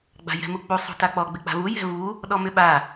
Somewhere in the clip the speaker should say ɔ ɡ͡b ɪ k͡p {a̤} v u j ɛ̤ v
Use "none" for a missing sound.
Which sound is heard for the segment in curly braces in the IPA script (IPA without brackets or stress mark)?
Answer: a̤